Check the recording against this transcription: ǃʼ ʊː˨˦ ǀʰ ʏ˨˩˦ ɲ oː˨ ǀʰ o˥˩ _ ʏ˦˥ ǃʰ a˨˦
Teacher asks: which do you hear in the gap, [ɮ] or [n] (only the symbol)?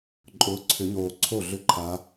ɮ